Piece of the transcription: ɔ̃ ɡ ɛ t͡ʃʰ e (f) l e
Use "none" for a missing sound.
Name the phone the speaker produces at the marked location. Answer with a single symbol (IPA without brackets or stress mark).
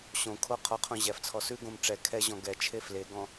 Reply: f